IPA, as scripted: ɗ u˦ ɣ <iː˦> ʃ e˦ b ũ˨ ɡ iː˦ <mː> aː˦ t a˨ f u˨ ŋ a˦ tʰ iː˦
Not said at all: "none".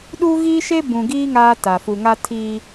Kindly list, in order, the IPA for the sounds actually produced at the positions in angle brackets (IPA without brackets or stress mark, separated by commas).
iː˦, ŋ